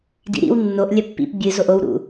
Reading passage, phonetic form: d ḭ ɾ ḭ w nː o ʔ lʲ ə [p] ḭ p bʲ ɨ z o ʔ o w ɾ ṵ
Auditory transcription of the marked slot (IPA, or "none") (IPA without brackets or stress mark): pː